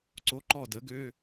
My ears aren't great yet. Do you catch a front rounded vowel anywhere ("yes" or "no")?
yes